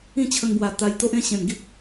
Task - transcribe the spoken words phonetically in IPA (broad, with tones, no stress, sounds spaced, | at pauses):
ĩ˥˧ t͡ɕʰ ə˧ ŋ b w a˨˩ t̪ a˧ j t̪ o˦ ʔ ẽ˥˧ ɕ ẽ˨˩ n ɡ i˦ k̚